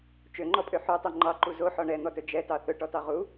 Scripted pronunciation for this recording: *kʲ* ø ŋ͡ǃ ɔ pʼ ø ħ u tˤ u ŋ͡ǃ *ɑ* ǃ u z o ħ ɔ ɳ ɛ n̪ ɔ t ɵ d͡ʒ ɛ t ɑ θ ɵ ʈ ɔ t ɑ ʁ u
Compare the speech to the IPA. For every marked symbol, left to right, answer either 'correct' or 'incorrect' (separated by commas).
incorrect, correct